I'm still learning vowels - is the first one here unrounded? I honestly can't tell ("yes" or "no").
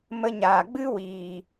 yes